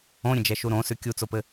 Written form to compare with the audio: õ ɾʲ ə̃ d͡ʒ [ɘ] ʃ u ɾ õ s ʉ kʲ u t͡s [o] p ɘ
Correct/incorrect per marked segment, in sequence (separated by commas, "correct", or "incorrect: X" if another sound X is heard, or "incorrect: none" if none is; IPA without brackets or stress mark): incorrect: ɛ, correct